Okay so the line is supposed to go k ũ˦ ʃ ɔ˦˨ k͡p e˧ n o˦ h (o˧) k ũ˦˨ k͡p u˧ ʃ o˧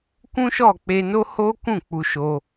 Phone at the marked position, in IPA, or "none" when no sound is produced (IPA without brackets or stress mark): o˦